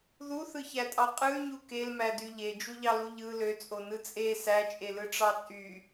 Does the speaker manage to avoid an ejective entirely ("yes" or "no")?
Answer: no